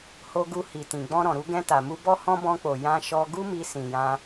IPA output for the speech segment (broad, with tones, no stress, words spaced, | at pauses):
ho˧ɡu˧ hi˨tĩ˨ ɡ͡bɔ̃˧ɾɔ̃˨ɾu˧ ɡɛ̃˧ta˨mu˧ bɔ˧hɔ̃˧ bɔ̃˧k͡po˨ jã˧ʃɔ˧ ɡu˦mi˧ sĩ˨jã˧